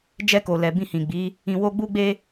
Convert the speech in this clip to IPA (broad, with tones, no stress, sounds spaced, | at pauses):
d͡ʒ ɛ˧ k o˨ l ɛ˨ b ĩ˧ h ĩ˨ ɡ͡b i˨˦ | ĩ˧ w o˦ ɡ͡b u˧ ɡ͡b e˧